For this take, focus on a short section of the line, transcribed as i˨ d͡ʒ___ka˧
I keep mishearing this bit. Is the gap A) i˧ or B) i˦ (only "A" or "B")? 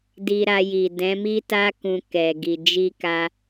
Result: A